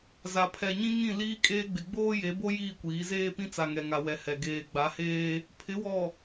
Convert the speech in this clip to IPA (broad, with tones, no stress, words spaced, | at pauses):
za˨pʰɛ˨ɲĩ˦ŋĩ˦˨ liː˦kʼeː˦ɡ͡bɪ˨ ɡ͡boː˦je˨˦bo˦ jiː˦˨kʷiː˨˦zeː˦pĩ˦ t͡sa˨ŋɛ˨ŋa˨ wɛ˨hɛ˨ ɡeː˨ ɡ͡ba˨˦heː˦ | pʰɪ˨˦wɔ˨